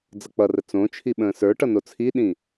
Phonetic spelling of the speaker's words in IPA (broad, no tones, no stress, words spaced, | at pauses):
d͡zʌk͡pʌrə t͡sõt͡ʃʰi ɓə̃ːsə˞ʈʌ not͡sʰiɗĩ